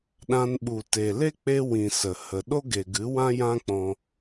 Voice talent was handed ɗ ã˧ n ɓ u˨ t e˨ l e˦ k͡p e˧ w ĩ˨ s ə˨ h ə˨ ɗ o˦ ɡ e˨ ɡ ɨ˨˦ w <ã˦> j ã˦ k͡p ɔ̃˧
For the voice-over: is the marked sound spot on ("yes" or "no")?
yes